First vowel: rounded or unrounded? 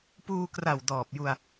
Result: rounded